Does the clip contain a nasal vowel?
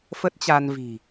no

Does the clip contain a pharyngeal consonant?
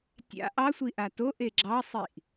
no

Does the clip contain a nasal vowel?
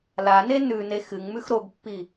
no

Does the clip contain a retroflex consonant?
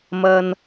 no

